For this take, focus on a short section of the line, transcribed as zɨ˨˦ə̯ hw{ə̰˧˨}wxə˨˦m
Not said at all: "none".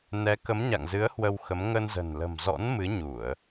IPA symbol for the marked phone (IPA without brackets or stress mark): ə˧